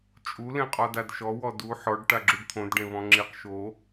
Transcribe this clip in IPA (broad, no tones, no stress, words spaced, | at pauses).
t͡ʃʼu lẽqʼɔdadʃɔ wɔdu ħɔɖ ʈaɡ͡ǁuɖt̪ʰõd ɖẽβɔ̃ŋ͡ǁiq ʃo